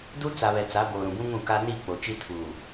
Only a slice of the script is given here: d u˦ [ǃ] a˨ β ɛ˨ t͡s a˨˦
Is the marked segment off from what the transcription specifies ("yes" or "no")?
yes